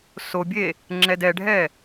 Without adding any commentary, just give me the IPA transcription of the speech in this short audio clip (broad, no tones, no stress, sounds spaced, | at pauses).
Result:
s o bʲ e | ŋ͡ǁ ɛ d ɛ ɖʱ ɛ